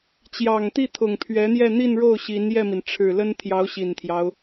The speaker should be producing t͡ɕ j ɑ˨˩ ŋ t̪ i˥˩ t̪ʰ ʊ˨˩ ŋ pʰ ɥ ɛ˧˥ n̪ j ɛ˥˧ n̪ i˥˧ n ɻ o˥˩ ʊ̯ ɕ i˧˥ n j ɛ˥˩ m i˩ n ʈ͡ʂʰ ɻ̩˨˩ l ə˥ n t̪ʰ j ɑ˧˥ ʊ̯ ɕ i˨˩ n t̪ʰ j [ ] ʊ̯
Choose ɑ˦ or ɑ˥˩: ɑ˦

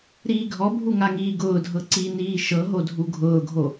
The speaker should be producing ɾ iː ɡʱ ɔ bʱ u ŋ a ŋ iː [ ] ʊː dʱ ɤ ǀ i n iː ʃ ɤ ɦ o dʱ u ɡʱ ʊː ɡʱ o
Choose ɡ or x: ɡ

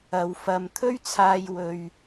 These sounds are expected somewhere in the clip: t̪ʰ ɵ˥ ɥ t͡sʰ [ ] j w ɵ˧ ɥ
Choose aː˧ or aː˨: aː˧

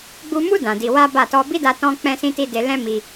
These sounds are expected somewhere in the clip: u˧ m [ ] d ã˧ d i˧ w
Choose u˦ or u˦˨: u˦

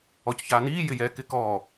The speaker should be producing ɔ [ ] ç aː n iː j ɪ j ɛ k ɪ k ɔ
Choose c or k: c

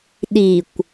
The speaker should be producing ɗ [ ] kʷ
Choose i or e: i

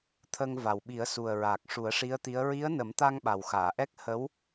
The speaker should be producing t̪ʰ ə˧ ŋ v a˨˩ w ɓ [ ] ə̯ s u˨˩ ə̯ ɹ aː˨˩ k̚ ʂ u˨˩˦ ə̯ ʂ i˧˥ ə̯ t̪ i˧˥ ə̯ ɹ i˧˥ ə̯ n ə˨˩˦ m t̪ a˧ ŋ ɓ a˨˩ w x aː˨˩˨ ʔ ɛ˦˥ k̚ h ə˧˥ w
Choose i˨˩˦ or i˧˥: i˨˩˦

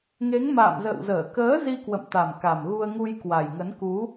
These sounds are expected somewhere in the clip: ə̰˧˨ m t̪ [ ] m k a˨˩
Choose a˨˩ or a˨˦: a˨˩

